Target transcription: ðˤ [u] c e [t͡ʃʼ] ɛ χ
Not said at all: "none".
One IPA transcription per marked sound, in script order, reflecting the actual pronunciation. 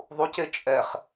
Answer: u, t͡ʃʼ

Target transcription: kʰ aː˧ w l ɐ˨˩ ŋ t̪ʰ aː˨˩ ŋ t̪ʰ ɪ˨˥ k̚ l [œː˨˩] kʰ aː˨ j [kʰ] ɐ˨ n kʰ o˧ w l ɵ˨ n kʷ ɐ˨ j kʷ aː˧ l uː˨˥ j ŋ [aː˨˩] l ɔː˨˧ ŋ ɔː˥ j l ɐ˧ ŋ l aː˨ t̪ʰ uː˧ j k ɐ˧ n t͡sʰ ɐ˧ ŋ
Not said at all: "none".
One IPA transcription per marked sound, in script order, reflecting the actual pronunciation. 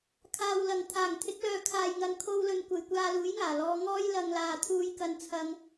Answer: œː˨˧, ŋ, aː˨˩

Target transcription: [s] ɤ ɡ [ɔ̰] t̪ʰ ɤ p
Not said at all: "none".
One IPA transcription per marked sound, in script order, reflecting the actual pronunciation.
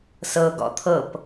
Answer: s, ɔ̰

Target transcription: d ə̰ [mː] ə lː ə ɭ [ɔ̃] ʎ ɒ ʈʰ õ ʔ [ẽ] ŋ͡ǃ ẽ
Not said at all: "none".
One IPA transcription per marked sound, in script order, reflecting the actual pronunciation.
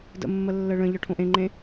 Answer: mː, ə̃, ẽ

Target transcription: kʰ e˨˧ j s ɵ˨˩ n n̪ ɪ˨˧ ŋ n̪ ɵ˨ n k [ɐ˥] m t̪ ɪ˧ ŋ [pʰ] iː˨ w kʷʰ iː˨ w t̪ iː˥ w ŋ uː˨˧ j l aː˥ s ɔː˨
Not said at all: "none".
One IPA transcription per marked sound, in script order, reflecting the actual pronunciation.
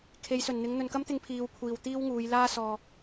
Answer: ɐ˥, pʰ

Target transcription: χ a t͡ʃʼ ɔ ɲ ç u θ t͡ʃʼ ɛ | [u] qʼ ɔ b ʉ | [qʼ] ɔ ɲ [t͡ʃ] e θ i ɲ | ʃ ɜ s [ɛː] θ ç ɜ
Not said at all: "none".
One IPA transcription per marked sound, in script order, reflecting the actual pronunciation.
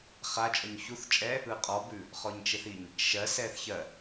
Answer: ɯ, χ, t͡ʃ, ɛː

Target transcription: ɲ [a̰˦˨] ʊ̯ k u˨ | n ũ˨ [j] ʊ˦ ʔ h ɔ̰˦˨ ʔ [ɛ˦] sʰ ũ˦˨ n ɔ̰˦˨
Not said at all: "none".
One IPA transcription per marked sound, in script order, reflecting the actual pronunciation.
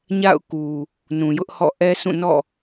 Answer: a̰˦˨, j, ɛ˦

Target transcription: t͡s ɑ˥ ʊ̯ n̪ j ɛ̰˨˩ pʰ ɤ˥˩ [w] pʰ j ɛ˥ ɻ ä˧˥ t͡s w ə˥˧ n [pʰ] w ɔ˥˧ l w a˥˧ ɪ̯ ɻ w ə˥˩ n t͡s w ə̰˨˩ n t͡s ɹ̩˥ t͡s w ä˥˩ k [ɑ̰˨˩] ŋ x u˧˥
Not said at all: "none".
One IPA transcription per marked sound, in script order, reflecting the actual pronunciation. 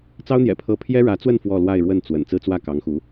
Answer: none, f, ɑ˧˥

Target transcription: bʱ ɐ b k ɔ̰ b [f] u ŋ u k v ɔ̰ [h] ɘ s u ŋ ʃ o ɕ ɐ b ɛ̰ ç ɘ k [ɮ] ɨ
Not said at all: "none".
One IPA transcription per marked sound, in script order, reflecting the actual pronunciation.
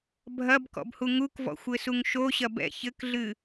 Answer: h, xʷ, ɮ

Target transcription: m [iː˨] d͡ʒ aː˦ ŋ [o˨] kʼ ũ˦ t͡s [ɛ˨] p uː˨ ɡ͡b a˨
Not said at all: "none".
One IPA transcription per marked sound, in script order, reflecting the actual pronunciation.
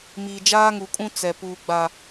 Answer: iː˨, u˨, ɛ˨

